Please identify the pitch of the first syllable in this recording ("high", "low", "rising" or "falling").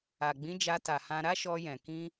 low